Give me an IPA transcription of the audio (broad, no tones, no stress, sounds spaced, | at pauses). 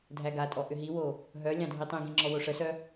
dʱ æ ɡ a tʼ ɔ ʔ ʏ ɦ i w o | ɦ œ lʲ ɑ̃ dʱ i tˤ ĩ ɡ ĩ ŋ͡ǁ ɔ w o ʂ ə s œ